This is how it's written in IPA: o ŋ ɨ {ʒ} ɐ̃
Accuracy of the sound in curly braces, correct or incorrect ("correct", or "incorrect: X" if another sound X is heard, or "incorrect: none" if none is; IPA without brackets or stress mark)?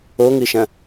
incorrect: ʃ